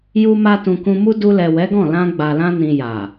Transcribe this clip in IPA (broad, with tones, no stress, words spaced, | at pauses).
ju˧ma˧ tũ˨ kũ˧mu˦ du˧lɛ˨ wɛ˨˦ɡɔ̃˦˨ lã˧ɡ͡ba˨lã˧nĩ˨ ja˨